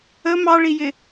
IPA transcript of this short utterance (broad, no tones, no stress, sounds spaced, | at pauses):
ə m ɑ ɭ i j ɪ